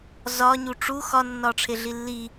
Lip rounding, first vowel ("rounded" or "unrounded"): rounded